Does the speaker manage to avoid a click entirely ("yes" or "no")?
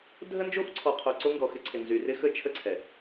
no